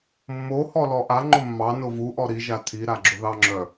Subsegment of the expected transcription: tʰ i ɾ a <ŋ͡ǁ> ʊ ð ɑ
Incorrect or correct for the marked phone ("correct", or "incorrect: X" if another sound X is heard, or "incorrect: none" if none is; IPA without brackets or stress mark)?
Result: incorrect: ɡ͡ǁ